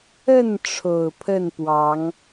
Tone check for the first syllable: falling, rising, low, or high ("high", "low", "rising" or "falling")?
falling